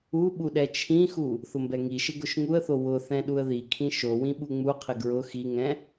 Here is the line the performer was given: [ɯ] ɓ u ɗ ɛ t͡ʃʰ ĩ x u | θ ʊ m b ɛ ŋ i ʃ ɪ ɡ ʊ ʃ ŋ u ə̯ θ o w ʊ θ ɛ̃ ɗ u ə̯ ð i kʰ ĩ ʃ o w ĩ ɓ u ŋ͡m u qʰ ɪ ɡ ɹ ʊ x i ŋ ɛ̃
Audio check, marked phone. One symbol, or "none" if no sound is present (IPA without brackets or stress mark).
u